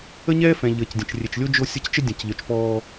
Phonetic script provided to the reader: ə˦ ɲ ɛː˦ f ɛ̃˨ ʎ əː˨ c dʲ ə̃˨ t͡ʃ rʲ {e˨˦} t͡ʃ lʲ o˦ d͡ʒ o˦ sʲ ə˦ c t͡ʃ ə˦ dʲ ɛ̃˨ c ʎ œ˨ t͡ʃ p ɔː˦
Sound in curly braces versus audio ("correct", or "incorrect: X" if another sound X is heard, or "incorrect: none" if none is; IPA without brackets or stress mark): incorrect: e˨